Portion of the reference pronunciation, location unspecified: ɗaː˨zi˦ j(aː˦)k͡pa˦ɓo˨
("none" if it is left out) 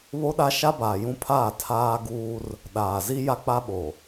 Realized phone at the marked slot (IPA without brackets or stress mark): a˦